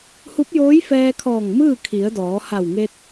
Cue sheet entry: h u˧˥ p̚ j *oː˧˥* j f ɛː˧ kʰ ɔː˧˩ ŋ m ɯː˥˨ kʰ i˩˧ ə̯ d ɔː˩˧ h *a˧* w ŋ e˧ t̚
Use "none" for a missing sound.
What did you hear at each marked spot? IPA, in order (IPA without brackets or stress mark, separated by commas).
oː˧˥, a˧˩